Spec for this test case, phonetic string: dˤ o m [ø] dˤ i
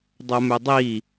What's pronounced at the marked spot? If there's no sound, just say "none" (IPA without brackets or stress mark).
ø